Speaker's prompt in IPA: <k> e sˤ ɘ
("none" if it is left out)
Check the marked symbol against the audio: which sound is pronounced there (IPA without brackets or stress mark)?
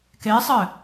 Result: k